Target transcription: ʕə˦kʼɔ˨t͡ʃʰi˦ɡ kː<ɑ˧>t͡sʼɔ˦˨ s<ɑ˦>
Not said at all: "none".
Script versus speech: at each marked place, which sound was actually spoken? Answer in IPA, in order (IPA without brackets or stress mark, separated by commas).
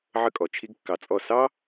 ɑ˧, ɑ˦